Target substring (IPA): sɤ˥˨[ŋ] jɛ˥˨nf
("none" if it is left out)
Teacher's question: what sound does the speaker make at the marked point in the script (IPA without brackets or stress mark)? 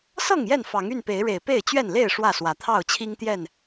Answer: ŋ